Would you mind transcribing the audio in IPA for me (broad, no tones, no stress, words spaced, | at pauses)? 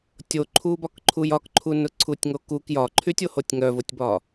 tʲoǃʰubɒkǃʰuj ɒkǃʰun ʊǀʰutʲŋokuk jɒǃʰytʲohotʲ ŋœvʊtʲbɒ